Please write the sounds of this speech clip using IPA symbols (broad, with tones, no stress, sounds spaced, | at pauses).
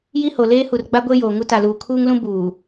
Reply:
j i˦ h o˨ l eː˦ h u˨ r ɡ͡b a˦ ɡʷ e˦ j oː˨ ŋ u˦ t a˨ l uː˨ kʰ uː˦ ŋ l ũ˦ b uː˨